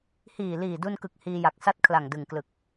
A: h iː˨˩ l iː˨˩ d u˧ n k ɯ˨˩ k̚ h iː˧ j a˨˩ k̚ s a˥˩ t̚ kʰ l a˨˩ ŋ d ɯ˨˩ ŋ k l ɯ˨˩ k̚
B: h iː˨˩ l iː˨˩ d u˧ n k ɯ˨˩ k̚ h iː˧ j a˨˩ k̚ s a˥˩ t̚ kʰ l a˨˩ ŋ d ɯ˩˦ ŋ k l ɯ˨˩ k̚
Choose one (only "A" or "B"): A